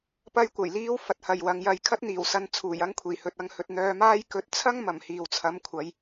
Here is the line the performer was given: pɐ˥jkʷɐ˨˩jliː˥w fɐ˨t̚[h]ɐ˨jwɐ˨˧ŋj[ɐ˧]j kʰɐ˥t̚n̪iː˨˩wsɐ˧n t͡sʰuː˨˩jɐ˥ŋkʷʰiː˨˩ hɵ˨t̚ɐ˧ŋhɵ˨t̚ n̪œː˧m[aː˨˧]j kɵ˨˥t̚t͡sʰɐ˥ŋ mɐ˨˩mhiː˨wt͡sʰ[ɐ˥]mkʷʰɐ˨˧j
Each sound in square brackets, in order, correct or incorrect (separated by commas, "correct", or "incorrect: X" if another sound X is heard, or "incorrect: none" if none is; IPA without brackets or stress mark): correct, correct, incorrect: aː˥, incorrect: ɐ˨˥